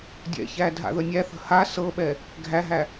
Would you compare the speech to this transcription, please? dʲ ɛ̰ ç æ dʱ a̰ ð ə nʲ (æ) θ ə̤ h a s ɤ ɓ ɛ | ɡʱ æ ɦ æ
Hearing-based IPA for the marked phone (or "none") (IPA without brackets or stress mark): æ